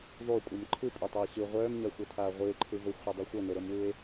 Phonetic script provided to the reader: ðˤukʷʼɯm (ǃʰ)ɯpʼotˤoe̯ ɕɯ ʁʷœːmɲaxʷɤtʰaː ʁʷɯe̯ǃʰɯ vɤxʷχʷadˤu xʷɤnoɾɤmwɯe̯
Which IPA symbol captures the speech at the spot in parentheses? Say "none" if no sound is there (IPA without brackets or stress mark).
ǃʰ